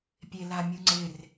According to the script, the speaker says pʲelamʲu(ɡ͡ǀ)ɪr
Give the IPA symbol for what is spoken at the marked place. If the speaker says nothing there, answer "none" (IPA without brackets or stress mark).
ŋ͡ǀ